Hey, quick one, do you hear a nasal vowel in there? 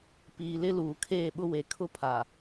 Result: no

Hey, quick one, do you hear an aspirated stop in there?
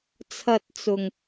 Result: yes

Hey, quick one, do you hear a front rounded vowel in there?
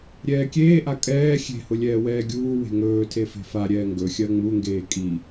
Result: no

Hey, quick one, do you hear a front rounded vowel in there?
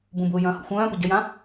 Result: yes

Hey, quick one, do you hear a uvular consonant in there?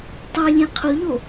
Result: yes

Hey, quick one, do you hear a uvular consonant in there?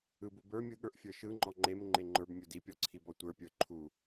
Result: no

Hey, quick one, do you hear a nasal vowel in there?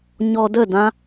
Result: yes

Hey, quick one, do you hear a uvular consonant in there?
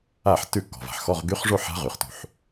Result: yes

